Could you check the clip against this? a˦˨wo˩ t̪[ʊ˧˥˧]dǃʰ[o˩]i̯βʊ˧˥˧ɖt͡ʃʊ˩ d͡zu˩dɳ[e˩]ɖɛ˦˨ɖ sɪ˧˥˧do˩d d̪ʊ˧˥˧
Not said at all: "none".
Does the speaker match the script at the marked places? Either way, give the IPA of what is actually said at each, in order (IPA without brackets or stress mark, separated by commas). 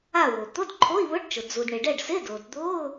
ʊ˧˥˧, o˧˥˧, e˩